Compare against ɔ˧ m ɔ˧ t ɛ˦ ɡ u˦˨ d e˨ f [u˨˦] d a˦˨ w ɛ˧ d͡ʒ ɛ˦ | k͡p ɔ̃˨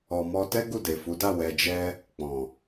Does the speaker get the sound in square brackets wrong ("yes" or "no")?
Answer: no